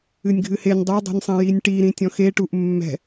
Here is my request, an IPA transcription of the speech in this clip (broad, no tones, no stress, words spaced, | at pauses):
ɨnʲɡʱɨhenʲ dˤɐdˤe̤nʲsˤẽ jinʲʈi ɾĩtʲɔ̃xeʈuʔ mːɛ̤